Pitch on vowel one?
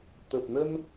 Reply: low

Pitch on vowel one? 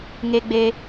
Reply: high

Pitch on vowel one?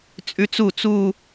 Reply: rising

